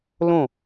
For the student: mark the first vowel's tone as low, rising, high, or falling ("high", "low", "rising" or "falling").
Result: falling